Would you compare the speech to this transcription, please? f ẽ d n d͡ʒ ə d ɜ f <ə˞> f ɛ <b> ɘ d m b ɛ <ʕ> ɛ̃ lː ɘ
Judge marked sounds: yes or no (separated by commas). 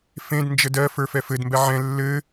yes, no, yes